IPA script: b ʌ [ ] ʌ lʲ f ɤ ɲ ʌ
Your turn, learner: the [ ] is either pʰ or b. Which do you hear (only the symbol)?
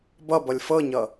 b